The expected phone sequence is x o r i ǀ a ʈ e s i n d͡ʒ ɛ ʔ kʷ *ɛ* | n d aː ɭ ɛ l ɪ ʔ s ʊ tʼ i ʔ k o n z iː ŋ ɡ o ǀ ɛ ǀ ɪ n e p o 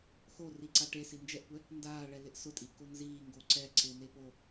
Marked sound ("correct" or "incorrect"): correct